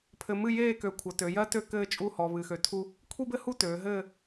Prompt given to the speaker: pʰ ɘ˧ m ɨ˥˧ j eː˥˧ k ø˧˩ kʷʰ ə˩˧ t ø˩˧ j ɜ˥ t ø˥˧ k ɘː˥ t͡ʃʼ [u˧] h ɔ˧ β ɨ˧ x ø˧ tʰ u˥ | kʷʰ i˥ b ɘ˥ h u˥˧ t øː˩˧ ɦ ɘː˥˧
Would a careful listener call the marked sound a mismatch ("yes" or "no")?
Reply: yes